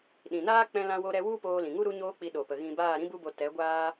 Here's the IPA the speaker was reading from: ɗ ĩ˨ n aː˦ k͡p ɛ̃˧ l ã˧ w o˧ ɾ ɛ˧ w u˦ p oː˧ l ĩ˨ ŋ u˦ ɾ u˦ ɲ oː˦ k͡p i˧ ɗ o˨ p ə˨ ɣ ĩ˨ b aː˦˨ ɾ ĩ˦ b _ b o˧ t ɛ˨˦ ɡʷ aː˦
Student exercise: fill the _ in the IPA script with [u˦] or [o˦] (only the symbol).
u˦